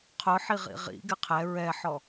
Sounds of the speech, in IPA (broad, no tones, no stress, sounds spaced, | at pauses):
qʰ ʊ ħ i ʁ ḭ ʁ ḭ ɡ ɪ qʰ ɛ ɹ ɛ ħ ɔ